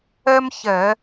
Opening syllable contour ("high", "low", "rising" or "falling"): high